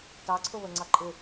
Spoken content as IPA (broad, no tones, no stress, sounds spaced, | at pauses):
t ɑ ǀʰ ʊ β ə ŋ͡ǀ ɑ ǃʼ ɪ